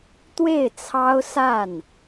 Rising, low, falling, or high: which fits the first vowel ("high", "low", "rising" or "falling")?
falling